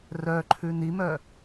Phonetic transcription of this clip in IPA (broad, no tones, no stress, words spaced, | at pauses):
rœ ǃʰʉnimœ